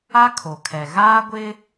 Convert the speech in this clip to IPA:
a˦ kʰ o˨ kʰ ɛ˨ ɣ aː˦ ɡʷ ɪ˦

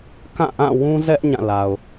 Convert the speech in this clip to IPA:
k ã˦˨ ʔ ã˦˨ w ũ˦ z ɛ˦ ʔ ɲ ã˦˨ l a˨ ʊ̯

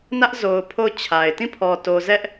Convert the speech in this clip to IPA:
n ä˦ ʔ z o˨ ʊ̯ pʰ o˦˨ ʊ̯ t͡ɕʰ a˨ ɪ̯ t ĩ˦˨ pʰ ɔ˨ t o˨ z ɛ˦ ʔ

